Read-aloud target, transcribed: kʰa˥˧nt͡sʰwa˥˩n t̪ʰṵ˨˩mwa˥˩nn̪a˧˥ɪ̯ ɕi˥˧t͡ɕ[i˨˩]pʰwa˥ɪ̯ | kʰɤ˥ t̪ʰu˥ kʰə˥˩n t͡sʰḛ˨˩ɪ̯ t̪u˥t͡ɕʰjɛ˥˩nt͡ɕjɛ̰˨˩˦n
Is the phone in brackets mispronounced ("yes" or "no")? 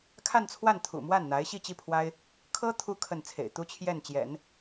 yes